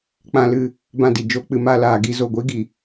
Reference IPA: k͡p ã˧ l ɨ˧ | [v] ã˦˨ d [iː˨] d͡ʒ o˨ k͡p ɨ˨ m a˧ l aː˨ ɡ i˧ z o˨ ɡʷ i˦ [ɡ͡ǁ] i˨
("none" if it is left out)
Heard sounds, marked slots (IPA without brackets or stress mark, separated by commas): b, i˨, ɡ